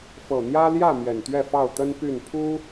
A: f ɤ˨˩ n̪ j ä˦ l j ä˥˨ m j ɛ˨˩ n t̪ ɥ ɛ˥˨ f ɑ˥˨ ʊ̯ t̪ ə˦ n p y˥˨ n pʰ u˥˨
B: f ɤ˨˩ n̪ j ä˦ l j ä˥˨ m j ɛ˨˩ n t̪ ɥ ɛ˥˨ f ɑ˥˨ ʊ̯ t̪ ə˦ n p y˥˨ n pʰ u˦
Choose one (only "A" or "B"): B